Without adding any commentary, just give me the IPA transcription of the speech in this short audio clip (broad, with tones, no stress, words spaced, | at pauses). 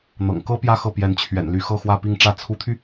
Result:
n̪ɤ̰˨˩ŋkɤ˥ pjä˥˧xɤ˥˩ pjɛ˧˥nt͡ɕʰɥɛ̰˨˩nly˧˥ xɤ˥˧xwä˥˧pi˥˧ŋʈ͡ʂä˥˩ t͡sʰu˧˥t̪ʰy˧